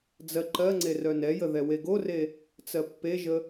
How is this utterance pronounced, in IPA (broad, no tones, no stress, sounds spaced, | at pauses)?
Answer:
d͡z ɜ ǃ ɜ ŋ͡ǀ e r œ n ɛ j ə ð ɛ w e ɡ o r e | t͡s ɜ pː e ʒ ə